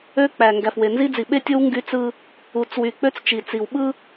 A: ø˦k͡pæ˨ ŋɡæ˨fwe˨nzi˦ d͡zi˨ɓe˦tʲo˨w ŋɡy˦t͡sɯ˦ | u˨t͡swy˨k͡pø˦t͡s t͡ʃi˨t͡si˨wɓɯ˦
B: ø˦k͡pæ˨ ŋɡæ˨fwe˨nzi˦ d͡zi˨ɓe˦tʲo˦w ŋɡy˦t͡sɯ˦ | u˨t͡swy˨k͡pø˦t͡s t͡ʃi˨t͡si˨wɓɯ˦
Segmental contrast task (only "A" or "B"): B